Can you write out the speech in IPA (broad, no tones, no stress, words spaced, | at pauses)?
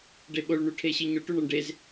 ɖeɓoɭ ɳuʈʰeɕiɲoʈ uɳɒɳɖez